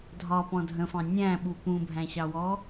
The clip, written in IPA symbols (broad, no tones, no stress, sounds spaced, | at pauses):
dʱ ɒ p ɔ̃ dʱ ə̃ f ɑ̃ nʲ æ̃ ɓ u p ũ bʱ æ̃ ɕ ɑ w ɔ